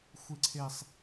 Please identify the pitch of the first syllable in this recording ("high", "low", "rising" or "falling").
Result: low